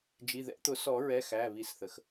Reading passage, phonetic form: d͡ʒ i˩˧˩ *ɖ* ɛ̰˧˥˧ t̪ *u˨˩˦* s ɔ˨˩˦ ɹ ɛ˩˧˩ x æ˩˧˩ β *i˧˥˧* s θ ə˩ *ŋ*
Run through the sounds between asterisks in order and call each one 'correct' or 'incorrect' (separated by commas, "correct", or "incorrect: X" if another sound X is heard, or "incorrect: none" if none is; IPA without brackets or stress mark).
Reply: incorrect: ð, incorrect: ʊ˨˩˦, incorrect: i˨˩˦, incorrect: x